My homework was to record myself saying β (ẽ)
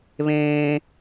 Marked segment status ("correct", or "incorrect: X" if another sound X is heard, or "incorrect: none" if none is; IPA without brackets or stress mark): incorrect: ẽː